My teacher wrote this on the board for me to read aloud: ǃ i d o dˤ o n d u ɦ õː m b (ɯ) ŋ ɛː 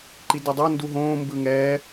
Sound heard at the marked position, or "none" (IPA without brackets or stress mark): ɯ